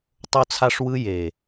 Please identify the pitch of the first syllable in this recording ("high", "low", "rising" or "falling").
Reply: high